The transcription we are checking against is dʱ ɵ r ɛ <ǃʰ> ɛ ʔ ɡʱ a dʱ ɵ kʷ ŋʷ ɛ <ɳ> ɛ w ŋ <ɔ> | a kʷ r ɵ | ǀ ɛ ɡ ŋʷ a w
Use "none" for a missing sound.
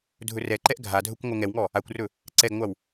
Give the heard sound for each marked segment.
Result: ǃ, ŋ, ɔ

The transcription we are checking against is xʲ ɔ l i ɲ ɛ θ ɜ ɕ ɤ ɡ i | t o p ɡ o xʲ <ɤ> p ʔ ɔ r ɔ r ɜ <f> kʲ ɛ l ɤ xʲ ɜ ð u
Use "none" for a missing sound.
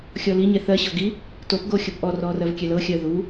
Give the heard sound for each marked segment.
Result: ɤ, v

